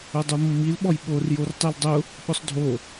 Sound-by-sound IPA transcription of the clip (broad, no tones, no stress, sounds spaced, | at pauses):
ʊ dˤ u mː i l ɓ ɔ j ɓ o r j o r tˤ e l dˤ ʊ | ɓ ʊ sˤ dʱ o